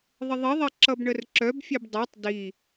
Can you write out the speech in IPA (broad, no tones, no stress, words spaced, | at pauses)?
ðˤəðˤiðˤɛ ǁʌbɳərǁœbfʲɛb dˤɤtˤ di